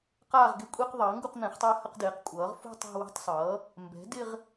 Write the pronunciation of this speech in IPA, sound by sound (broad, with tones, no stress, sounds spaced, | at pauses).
q aː˥˧ ʁ ɡ ɪ˥˧ kʷʼ i˥˧ q ðˤ ʌː˩˥ ŋ ɡ u˥˧ q n̪ ɛ̃˩˥ χ tˤ ʌː˥˧ h ə˥˧ q d ɪː˩˥ q kʷʼ ʌː˩˥ ʁ f ṳ˥˧ tˤ ɛ̤˥˧ w i̤˥˧ tˤ sˤ ʌː˩˥ | m b ɛ̤˩˥ d ɪ˥˧ ʁ